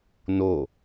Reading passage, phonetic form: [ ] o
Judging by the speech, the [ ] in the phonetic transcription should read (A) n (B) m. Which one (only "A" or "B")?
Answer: A